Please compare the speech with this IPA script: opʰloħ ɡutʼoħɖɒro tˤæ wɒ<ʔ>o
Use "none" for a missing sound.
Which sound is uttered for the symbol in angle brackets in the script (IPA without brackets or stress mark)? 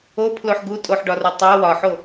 ħ